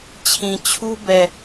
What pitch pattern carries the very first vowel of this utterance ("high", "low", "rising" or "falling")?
low